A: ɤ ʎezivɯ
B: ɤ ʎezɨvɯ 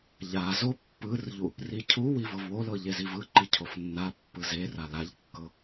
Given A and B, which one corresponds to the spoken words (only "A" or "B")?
A